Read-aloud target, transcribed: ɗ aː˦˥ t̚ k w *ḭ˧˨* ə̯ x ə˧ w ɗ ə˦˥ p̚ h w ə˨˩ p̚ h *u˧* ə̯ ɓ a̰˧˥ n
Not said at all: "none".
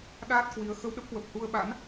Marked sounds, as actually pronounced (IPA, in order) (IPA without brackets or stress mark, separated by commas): i˨˦, u˧